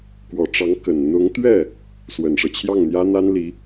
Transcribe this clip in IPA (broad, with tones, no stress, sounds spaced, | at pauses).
k w ɔ˨˩ ʈ͡ʂ ɑ˧˥ ŋ k ə˨˩ n n̪ ʊ˧˥ ŋ t̪ ɥ ɛ˥˩ | s w ə˨˩ n ʂ ɤ˦ t͡ɕʰ j ɑ˥˩ ŋ n̪ j ä˥ n̪ a˥ n l i˧˥